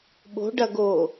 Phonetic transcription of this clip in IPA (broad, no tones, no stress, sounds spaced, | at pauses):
ɓ o̤ ɖ ɐ ɡ o